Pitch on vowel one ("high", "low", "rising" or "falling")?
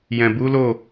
low